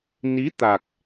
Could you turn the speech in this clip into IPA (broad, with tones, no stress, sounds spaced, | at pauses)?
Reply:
n i˨˦ t̪ a˨˩ k̚